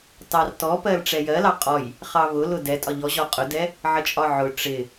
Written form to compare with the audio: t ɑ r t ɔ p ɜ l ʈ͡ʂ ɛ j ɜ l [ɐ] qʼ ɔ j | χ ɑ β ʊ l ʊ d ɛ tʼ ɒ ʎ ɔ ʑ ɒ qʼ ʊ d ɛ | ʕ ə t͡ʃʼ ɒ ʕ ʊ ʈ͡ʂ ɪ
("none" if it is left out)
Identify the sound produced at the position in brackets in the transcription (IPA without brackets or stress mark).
ɑ